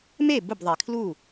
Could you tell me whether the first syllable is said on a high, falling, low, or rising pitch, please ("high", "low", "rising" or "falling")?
falling